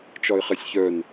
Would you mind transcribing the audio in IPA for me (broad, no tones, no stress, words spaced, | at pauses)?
t͡ʃɒɪ̯χɛsʲçœn